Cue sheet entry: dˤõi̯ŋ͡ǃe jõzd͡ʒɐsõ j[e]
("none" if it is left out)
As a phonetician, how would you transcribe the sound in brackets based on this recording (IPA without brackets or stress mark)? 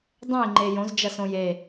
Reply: e